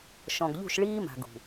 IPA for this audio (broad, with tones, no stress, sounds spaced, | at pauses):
ʃ ɔ̃˨ ɡ ʎ ṳ˦˨ ʃ ɭ iː˦ m a̤˨ ɡ ṳ˨